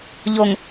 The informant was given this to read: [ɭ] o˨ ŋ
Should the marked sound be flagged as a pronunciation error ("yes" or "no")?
yes